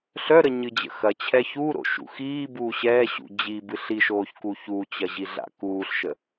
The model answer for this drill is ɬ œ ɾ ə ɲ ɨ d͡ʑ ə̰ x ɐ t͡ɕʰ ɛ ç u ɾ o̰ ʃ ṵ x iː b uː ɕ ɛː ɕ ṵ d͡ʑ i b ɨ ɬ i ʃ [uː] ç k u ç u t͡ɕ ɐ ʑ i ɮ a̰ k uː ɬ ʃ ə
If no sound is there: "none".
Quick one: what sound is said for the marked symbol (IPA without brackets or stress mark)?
oː